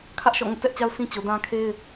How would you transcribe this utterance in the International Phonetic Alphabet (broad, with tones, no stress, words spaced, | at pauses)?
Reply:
kʰä˦ʔ ʃɔ̰˦˨ŋʊ˦ʔtɛ˦ʔt͡ɕa˦ʊ̯ sʰĩ˦ t͡ɕo˨ dã˦kʰe˦ɪ̯